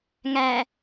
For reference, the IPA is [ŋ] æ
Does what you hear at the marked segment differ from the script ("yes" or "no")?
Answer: no